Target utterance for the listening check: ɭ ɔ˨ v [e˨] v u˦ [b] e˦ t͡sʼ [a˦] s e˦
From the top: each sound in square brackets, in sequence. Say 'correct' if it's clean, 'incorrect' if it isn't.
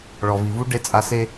incorrect: i˨, incorrect: ɖ, correct

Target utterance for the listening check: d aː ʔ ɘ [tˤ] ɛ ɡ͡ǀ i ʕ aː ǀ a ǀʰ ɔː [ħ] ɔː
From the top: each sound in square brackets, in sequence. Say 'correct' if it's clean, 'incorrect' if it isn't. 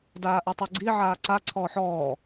correct, correct

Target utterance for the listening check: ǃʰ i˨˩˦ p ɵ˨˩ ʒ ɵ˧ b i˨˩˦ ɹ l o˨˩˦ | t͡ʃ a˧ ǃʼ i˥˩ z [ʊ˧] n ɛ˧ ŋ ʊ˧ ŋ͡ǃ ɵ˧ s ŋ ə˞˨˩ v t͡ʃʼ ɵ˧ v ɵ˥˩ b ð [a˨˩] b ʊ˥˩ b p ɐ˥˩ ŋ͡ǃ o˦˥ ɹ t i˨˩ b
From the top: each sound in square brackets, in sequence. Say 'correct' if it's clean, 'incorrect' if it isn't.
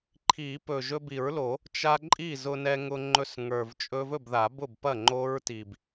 correct, incorrect: a˨˩˦

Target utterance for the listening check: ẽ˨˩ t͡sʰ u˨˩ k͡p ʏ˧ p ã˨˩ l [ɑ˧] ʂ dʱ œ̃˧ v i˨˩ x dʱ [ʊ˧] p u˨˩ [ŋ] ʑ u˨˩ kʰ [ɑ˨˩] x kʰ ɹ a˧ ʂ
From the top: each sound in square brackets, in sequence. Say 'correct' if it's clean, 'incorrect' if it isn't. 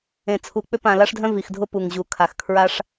incorrect: a˧, correct, correct, incorrect: a˨˩

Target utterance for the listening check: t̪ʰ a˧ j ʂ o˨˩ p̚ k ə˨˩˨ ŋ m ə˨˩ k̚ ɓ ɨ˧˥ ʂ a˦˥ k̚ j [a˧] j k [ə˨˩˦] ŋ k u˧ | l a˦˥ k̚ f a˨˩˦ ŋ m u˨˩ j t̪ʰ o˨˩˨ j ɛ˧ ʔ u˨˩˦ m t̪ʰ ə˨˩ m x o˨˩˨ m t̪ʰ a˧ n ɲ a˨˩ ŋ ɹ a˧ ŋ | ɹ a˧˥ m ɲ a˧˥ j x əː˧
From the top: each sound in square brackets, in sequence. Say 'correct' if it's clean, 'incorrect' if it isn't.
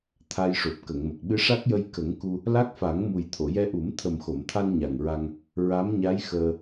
incorrect: ə˧, correct

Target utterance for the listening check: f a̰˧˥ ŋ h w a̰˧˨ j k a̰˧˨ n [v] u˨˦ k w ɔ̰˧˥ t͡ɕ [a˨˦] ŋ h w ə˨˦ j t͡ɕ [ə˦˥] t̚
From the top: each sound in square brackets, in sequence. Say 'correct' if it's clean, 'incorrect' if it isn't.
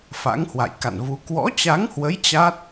correct, correct, incorrect: a˦˥

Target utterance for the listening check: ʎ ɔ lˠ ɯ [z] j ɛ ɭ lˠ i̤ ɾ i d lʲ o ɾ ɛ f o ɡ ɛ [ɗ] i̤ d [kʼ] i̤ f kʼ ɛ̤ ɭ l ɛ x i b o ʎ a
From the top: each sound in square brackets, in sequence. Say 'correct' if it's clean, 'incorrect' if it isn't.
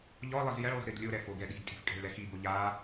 correct, correct, incorrect: tʼ

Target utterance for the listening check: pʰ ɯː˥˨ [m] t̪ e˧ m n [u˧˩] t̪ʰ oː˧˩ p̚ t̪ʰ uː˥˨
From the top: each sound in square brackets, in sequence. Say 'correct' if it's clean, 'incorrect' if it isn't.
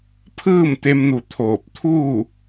correct, correct

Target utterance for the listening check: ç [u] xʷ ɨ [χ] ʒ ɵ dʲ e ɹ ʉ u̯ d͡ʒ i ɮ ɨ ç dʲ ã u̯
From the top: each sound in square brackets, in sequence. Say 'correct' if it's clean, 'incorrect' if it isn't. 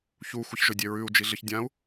correct, incorrect: ç

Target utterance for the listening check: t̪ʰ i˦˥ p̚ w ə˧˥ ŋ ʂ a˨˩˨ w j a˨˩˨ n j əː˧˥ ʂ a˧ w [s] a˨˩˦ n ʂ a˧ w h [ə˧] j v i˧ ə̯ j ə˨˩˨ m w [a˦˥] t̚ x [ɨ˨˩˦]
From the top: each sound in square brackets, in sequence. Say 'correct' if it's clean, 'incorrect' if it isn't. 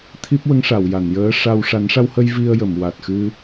incorrect: ʂ, correct, incorrect: a˨˩, incorrect: ɨ˧

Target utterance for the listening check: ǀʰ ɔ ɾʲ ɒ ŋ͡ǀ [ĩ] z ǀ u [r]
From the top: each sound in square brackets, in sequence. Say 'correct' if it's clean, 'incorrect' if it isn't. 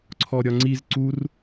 incorrect: i, correct

